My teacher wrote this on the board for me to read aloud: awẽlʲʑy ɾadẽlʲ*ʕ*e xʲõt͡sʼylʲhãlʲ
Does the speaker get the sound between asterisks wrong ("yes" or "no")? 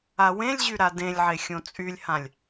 no